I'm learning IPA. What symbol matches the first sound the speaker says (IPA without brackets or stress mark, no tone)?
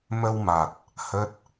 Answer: m